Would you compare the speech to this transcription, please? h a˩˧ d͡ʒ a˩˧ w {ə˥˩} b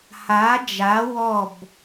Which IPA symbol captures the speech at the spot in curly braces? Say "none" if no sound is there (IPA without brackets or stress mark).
ɔ˥˩